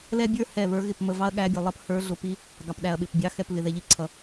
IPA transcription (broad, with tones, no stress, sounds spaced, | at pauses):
l ɛ˦ bʲ ə˞˦ h ɛ˧˩ β ə˞˨˦ ɣ ɪ˧˩ p m ə˧˩ v ɑ˦ ɐ̯ ɠ æ˨˦ bʲ ɛ˩ lˠ ʌ˦ p h ə˞˨˦ ɮ ʊ˩ p i˦ | ɡ ɑ˩ p ɗ æ˩ ɐ̯ ɓ ɪ˩ p bʲ ɑ˨˦ x ɛ˧˩ p β ɪ˩ ð ɛ˩ ʎ i˨˦ ǀʰ ʌ˩